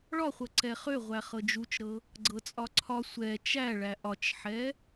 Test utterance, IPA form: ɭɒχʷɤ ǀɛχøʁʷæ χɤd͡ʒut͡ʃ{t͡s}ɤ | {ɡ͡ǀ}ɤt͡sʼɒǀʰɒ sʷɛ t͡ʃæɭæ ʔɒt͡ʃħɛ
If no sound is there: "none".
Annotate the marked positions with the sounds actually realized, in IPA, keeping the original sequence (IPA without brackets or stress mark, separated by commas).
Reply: ɾ, ɡ͡ǀ